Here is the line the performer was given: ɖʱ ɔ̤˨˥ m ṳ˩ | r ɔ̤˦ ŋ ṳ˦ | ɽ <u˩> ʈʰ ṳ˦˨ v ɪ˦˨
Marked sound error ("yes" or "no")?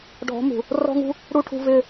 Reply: yes